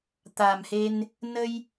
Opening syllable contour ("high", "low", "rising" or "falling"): low